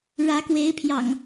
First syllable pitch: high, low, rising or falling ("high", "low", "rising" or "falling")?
rising